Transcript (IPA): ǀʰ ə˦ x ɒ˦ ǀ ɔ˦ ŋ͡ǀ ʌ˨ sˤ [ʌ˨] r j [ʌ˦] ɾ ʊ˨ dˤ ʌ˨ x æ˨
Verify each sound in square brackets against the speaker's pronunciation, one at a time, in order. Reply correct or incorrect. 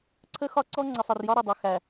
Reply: correct, incorrect

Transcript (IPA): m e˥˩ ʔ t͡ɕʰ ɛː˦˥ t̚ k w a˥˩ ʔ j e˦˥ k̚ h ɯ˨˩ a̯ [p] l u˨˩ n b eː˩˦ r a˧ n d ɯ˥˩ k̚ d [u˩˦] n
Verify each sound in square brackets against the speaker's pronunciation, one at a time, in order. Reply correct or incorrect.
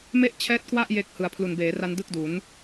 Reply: incorrect, correct

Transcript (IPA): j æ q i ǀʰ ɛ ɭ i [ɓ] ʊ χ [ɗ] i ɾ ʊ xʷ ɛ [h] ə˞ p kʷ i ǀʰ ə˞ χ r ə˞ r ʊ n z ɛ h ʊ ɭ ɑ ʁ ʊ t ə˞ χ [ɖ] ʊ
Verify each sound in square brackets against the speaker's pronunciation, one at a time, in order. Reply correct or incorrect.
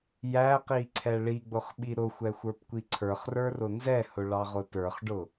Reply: incorrect, incorrect, incorrect, correct

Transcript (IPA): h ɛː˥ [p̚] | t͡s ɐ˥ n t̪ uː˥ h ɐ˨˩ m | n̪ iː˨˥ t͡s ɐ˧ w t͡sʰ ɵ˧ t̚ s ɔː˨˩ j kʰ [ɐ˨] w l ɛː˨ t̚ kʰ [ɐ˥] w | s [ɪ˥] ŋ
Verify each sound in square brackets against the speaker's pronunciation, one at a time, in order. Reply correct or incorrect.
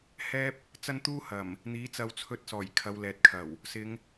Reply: correct, incorrect, incorrect, incorrect

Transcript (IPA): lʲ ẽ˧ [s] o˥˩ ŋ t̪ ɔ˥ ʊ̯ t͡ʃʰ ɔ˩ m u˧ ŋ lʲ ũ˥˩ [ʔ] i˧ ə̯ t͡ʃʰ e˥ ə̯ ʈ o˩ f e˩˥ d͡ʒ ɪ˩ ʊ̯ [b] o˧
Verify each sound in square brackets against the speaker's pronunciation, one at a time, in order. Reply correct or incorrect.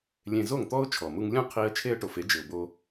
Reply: incorrect, incorrect, correct

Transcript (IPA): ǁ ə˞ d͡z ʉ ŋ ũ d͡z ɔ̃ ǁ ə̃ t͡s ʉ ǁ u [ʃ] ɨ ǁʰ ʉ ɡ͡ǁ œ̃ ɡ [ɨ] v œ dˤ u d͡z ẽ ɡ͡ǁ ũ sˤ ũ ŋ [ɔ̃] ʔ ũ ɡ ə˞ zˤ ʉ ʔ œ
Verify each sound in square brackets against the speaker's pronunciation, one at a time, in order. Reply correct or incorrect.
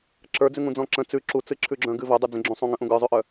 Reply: incorrect, correct, incorrect

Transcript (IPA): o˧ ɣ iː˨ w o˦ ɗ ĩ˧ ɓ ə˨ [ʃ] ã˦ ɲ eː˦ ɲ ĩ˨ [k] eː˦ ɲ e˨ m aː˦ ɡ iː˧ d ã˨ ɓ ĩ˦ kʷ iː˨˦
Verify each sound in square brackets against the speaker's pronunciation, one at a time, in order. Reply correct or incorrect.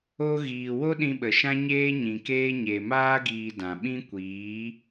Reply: correct, correct

